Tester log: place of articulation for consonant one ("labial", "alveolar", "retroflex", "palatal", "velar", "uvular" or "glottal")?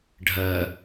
retroflex